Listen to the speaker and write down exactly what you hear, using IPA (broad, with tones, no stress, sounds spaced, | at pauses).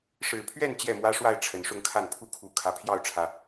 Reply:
ʂ ɻ̩˨˩ pʰ ɥ ɛ˥˨ n t͡ɕ j ɛ˥˨ m w ä˦ ʂ w a˥˨ ɪ̯ ʈ͡ʂʰ ə˨˩ n ʂ ʊ˥˨ ŋ kʰ a˥˨ n pʰ u˥˨ kʰ u˨˦ kʰ ä˨˩ pʰ j ɑ˥˨ ʊ̯ ʈ͡ʂʰ ä˨˩